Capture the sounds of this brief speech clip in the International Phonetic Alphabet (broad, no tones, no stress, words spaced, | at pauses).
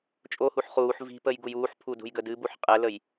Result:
t͡ʃʼohuħ χuːħ vi̤pəj ɡujuːħpʰu dṳjɡədɨbuħ qʼɛləj